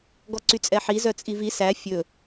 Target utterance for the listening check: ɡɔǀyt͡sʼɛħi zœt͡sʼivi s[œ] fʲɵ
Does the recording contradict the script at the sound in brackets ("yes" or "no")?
yes